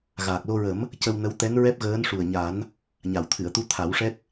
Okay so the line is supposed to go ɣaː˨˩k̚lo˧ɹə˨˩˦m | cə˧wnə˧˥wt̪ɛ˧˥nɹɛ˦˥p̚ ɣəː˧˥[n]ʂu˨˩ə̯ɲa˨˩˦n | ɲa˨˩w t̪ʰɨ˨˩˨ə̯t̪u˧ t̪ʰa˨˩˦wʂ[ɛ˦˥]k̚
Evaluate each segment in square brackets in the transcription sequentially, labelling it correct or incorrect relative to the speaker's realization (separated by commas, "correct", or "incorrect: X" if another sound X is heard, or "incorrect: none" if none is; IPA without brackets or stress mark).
correct, correct